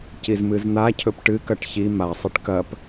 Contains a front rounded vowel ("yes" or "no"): no